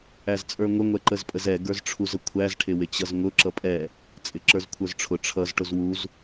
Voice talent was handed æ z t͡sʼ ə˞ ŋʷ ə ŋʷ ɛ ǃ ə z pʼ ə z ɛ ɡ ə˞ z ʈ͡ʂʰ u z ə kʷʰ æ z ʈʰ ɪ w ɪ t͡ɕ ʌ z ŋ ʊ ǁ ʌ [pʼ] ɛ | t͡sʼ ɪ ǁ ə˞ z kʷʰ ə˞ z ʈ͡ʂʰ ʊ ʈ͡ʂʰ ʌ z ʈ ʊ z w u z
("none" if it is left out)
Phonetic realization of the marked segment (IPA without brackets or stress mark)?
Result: pʼ